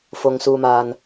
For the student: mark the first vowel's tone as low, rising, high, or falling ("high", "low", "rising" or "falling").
high